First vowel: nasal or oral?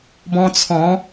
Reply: nasal